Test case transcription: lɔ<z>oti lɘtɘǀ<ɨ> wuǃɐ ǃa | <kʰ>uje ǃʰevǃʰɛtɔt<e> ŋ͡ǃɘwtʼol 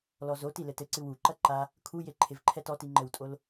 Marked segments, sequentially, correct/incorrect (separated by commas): correct, correct, correct, incorrect